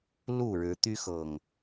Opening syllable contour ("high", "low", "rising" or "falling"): falling